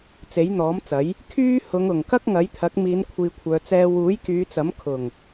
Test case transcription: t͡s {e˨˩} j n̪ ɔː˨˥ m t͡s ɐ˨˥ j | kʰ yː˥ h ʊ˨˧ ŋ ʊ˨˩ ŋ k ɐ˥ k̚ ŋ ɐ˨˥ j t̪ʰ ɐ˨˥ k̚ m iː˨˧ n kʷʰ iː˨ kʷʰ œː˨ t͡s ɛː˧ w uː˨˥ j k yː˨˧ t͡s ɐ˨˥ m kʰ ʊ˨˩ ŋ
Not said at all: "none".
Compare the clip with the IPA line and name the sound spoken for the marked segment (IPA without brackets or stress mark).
e˨˥